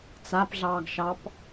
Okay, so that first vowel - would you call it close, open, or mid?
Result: open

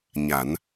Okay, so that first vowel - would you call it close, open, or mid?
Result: open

